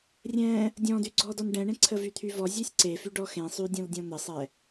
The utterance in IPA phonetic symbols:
rʲ ɛ̃ | dʲ ɔ̃ d y ɡ͡ǀ ɔ d ɔ n ɖ ɛ̃ ɳ ẽ ǀʰ ə v y t̪ʰ y v ɔ zʲ e sʲ ǀ e f y ɖ ɔ x ẽ sˤ y dʲ ɔ̃ l dʲ ɔ̃ n̪ ə sˤ ɛ

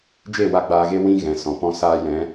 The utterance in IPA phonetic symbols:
d͡ʒ e˦˨ w a˧ ɡ͡b aː˧ ɣ e˦ w ĩ˦ ɣ ɛ̃˨ s ɔ̃˨ p ɔ̃˦ s aː˧ j ɛ̃˨˦

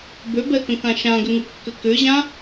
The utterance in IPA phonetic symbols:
b ø b ɛ k ə̃ k ã ʃ ã ɡ ʏ ŋ u kː ʏ k ʏ ʑ ã

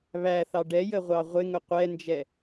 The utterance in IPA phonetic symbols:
β æ θ ɑ ɖ ɛ j ə ʁʷ ɑ ʁʷ ɪ ŋ ʊ qʷ ɛ n d͡ʒ ɛ

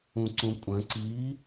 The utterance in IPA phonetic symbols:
ũ ǀ ũ kʷʼ ə̃ ǀ i

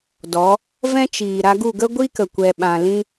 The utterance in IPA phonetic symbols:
d ɔ˨˦ | v ɛ̃˦ t͡ʃ iː˨ ɾ a˧ ɡ u˦˨ ɡ ə˦ ɡʷ i˦ k ə˨ kʷ ɛ˧ ɓ ã˨ l ĩ˦

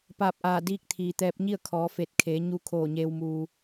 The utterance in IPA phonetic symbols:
p aː˧˩ p̚ ʔ aː˧˩ d iː˧ k̚ t̪ʰ iː˩ t̪ ɛː˧ p̚ ɲ i˥˨ ə̯ kʰ ɔː˩˧ f e˧˩ t̚ kʰ eː˩˧ ɲ u˧ kʰ oː˧˩ ɲ eː˧ w m uː˧

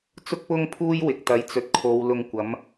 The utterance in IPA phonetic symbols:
t͡s ʊ˥ k̚ p ʊ˥ ŋ pʰ uː˥ j w ɪ˨ k̚ t̪ ɐ˨˥ j t͡s ɵ˨ t̚ kʰ o˨˧ w l ʊ˧ ŋ kʷ ɐ˨˥ m

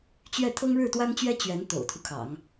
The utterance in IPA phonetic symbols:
t͡ɕ ɥ ɛ˥˩ t̪ʰ ɤ˥ ŋ ɻ ɻ̩˥˩ t̪ w a˥ n t͡ɕ ɥ ɛ˥ t͡ɕ ɥ ɛ˧˥ n t̪ o̰˨˩ ʊ̯ t̪ʰ u˦ kʰ ɑ̰˨˩˦ ŋ

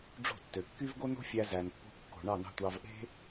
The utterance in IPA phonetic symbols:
ɖ͡ʐ o̤˦˨ tː ø˨ kː y˦ v ɡ o˦ n o̤˦ fʲ æ˧ z æ˨ n pː o̤˧ kː o̤˨ ɳ ɑ˦˨ n ɑ̤˦˨ tʷ ɑ˧ v ʔ e̤˦

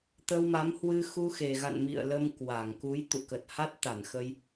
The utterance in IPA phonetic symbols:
t̪ ə˧ w m a˨˦ m h w ɨ˧ x u˧ x e˨˩ ɣ a̰˧˨ n m ḭ˧˨ ə̯ l ə˧ m k w a˧˩ ŋ k u˨˦ j t̪ ṵ˧˨ k ə˨˩ t̚ h a˦˥ t̚ t̪ a˧˩ n x ə˧ j

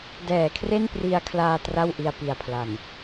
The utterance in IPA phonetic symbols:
d ɛː˩˦ kʰ r e˥˩ n p r i˧ a̯ kʰ l aː˧ t r a˥˩ w ʔ i˧ a̯ p i˨˩ a̯ pʰ l a˨˩ n

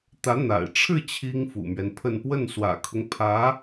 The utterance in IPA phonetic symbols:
t̪ ä˧˥ n̪ a̰˨˩ ɪ̯ ʈ͡ʂʰ ɻ̩˥˩ t͡ɕʰ i˥ ŋ f ṵ˨˩ m ɥ ɛ˦ n pʰ ə˥˧ n p w ə˥˩ n s w ä̰˨˩ kʰ ʊ˦ ŋ pʰ ä˧˥

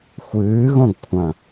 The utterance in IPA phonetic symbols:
xʷ ɨː ɣ õ ɡ kʷʰ ɐ̃

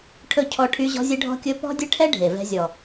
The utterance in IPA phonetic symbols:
ʈʰ ɵ˦ cʰ ɔ˦ ʈʰ y˦ ʑ ɔ̤˦ zʲ ɘ˦ ɖʱ ɔ̤˦ kʲ ɵ˦ p ɔ̤˦ dʲ ɘ˦ ʈʰ ɛ˦ ɖʱ e˨ v ɛ̤˦ zʲ ɔ˨

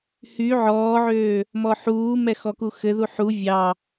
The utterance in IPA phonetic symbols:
h y ʕ ɔː ʕ øː | m ɔ ħ uː m ɛ x ɔ k u x ɘ ð u ħ u vʲ ɑ

